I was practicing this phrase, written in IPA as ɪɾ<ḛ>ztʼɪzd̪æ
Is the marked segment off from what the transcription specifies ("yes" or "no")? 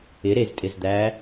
yes